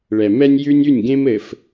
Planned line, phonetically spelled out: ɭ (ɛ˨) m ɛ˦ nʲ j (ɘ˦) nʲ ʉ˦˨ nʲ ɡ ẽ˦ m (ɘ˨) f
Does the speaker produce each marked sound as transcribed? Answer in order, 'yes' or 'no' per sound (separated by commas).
yes, no, yes